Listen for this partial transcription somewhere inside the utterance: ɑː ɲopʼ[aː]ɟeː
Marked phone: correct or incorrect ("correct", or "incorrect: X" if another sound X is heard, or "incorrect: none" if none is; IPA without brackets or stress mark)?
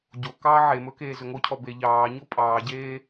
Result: incorrect: ɑː